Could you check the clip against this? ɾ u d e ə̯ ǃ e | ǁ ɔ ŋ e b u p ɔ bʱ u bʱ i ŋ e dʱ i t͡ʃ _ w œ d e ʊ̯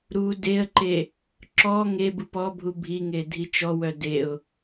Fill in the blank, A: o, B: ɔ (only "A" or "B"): B